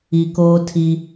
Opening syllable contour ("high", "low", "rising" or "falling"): low